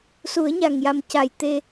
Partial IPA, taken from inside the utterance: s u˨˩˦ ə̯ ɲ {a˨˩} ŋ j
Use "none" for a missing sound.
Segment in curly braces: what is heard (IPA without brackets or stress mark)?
a˨˩